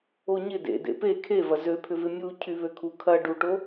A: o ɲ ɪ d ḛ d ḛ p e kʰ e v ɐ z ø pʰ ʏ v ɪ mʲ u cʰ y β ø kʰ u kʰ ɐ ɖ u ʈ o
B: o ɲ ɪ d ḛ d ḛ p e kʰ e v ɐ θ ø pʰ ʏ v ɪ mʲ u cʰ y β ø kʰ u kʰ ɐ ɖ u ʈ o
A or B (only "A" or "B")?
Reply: A